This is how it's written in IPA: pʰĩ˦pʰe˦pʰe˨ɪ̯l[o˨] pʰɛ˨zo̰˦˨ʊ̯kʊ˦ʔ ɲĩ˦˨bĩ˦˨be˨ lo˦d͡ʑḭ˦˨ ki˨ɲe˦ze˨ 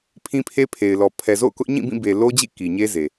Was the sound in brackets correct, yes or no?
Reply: no